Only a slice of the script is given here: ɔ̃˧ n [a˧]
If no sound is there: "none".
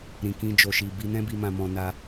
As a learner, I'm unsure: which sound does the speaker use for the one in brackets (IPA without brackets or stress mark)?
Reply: a˧